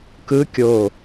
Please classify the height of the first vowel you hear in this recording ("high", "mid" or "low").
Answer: high